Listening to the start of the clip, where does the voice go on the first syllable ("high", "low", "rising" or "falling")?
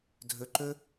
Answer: low